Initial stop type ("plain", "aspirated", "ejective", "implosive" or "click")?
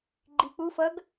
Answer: click